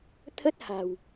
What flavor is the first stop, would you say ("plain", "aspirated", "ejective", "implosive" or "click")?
aspirated